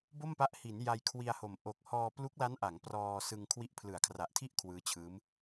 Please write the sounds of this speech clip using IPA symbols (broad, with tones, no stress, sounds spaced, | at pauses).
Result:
b o˥˩ m p a˦˥ ʔ h i˩˦ n j a˧ j kʰ w i˧ a̯ h o˨˩ m ʔ o˨˩ k̚ h ɔː˧ p l u˦˥ k̚ l a˦˥ n ʔ a˩˦ ŋ p r ɔː˧ s ɯ˧ ŋ kʰ w i˦˥ ʔ pʰ l ɯ˩˦ a̯ kʰ r a˨˩ ʔ tʰ i˥˩ ʔ kʰ w ɯː˦˥ t͡ɕʰ ɯː˦˥ m